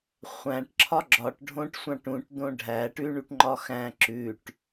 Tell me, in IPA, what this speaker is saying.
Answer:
χʷ æ̃ ʈ ǁʰ ɒ ɡ͡ǁ ɒ ʈ ɖʱ õ ʈ sʷ ɑ̃ ʈ ũ ʈ d̪ õ ɖʱ æ ʈ ʉ ɳ u ʈ ŋ͡ǃ ɒ x æ̃ ǁ ʉ ʈ

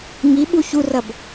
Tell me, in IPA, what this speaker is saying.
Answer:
ŋ i ɓ u ç u r ɐ b

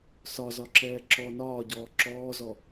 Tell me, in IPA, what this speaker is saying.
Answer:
s ɒ z ɒ ǁ ɛː ǁ ɔ n ɒː ɟ ɔː ǁ ɔː z ɔ

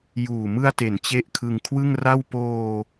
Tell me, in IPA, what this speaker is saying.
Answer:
j uː˨˩ m ɯ˧ a̯ t e˩˦ n t͡ɕ e˦˥ ʔ kʰ ɯ˧ ŋ kʰ w ɯ˥˩ ŋ r a˥˩ w p oː˧

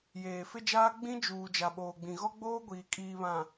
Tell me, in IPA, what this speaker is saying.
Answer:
j eː˨ f ɪ˦ d͡ʒ aː˦ ɡ͡b ĩ˦ d͡ʒ uː˨ d͡ʒ a˨ ɓ oː˨ ɡ͡b ĩ˨ ɣ ɔ˦ ɡ͡b oː˦ ɡʷ iː˨ kʼ iː˨ β ã˨

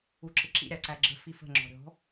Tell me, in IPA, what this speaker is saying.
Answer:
u ǁ ɪ ǁ ḭ ɾʲ ɑ ǀ æ ɡ͡ǁ ə̤ f i f ə̤ ŋ͡ǁ ɔ̤ ɾʲ ɔ̤

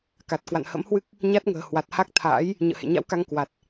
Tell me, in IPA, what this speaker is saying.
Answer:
k a˨˩ t̚ k w a̰˧˨ n h ə̰˧˥ m h w ɨ˦˥ k̚ | ɲ a˦˥ t̚ ŋ ə̤ː˨˩ h w a˨˩ t̚ h a˦˥ k̚ t̪ʰ a̰ː˧˥ j | ɲ ə̰ː˧˨ h ḛ˧˨ ɲ a̰˧˥ w k a˧ ŋ k w a˨˩ t̚

